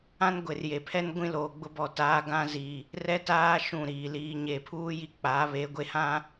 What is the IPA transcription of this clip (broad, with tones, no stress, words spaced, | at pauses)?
ã˦nɡʷe˨rje˨pʰɛ˦n ɡʷĩ˦loː˨ɡ͡bʊ˦bɔ˨˦ taː˦ɡã˦ zi˨ | rɛ˦taː˦ ʃũ˦˨ɾiː˨ liː˨ɲe˨pʰuː˦ ji˦ k͡pa˨˦βe˨˦ ɡʷe˦hã˦